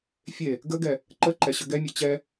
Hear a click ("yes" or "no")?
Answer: yes